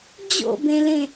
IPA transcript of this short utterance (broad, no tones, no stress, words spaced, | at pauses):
d͡ʑo̰bẽlẽ